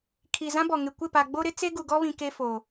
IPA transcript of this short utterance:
kʰi˨ zã˦bɔ˨ ŋɪ˨kʷɪ˦˨pa˨ ɡ͡bo˦ɾɪ˦ t͡se˦ɡu˨ɡɔ˦βĩ˨ ke˦fo˨

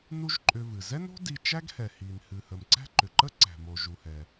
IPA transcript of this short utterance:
nu˥ʒǃʼʏ˧vɨ˩ zɛ˥no̤˥di˧ t͡ʃæ˥ɡhɛ˩ hi˩nhɨ˩hə˩mǀæ̤˥ ǃʏ˩ǃə˥ ǀæ̤˩mo˩ʒu˩hɛ˩

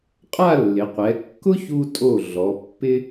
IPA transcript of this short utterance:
qʼa˥˧lːɪ˩˧qʷɛ˩˧ kːʊ˥çu˧ tʼo˧˩ ɮɔ˩˧pːɪ˥

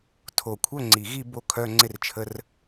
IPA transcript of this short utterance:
tʰo˨˩kʷʰœ˧˥˧ŋ͡ǀi˨˩ɣi˥˧ bo˥˧kʰœ˧˥˧ŋ͡ǀɪ˥˧rt͡ʃʰə˧˥˧r

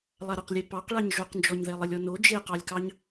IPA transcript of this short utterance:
lˠaɾəqlʲe pɑqɭɑɲ ʒoqnd͡ʒɔɲðɛ lˠɘlʲɔno d͡ʒeqɑlʲkɑɲ

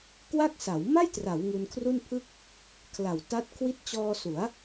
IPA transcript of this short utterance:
kwa˥˩k̚sa˩˦w ma˥˩jtra˩˦w ŋu˧nkʰru˥˩npʰɯ˥˩k̚ | kʰla˨˩wta˦˥t̚ kʰwi˦˥t̚t͡ɕɔː˧su˩˦a̯

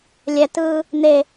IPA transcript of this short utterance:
lʲɛtɯː | n̪e

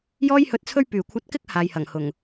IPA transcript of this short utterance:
jɔː˥jhɵ˧t̚t͡sʰɵ˥ɥpyː˨˩ kʷʰɐ˧t̚ kɪ˥k̚ haː˨jhɐ˨˩ŋhʊ˨˩ŋ

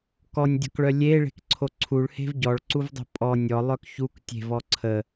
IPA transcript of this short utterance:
kɔnʲdʲɔ̤kɭœ lʲeɭe̤kǀʰo ǀʰuɭhe̤v ɟɔɭǀuvdˤo̤ pʼɔ nʲɔlˠœk çuk tʲe̤vɔ ǀʰə

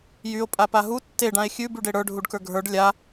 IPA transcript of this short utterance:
jyo̯ pʼapaɦu tːe ɖãe̯xʲʉ byɖeɽə˞ ɖʱuɖkə˞ɡʱə˞ɖ lʲa

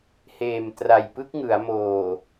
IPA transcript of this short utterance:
heː˨˩mtra˨˩jpɯ˦˥k̚ ŋɯ˩˦a̯moː˨˩

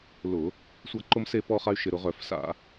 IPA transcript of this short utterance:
lʊ˧˩˧ | sʷa˦ǃʊ˦mse˦ pɔ˦χa˦y̯ʃɪ˧˩˧ɾʊ˧˩˧ ʁœ˧˩˧f sa̰˧˩˧

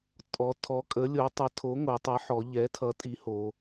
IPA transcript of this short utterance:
tʼɔ˨˥ tʰɔ˨˥kʼə˨˥lʲo˨˥ tˤʌ˨˥tʰo˨˥ŋo˩˧tˤʌ˨˥ ħɔ˩˧ ʎɛ˨˥tʰʌ˨˥ tʼi˨˥ho˩˧

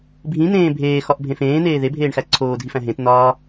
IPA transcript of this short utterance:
bʱĩn̪ẽː bʱeːxɒʔbʱẽ fẽːn̪eː ðebʱeːɳxæ ǀʰoːdʱifæ̃ ɦẽt nɒː

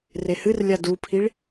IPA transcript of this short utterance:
rehɨrlʲa dupʰiɭ

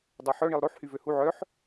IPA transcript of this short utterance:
dˤaħœɳilˠ ɾoħhy vøhu ʕœħ

